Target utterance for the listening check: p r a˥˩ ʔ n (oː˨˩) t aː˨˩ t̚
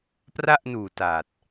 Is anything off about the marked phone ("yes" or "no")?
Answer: yes